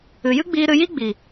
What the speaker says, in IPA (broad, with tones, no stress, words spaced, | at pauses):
ɨ˨jɨ˦ɡ͡biː˧ɾɨ˧ ji˦ɡ͡bi˨